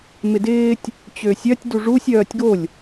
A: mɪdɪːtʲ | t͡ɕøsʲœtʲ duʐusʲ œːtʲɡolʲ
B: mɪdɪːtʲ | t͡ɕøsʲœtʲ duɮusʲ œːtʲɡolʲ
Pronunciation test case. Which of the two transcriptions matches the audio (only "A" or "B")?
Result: A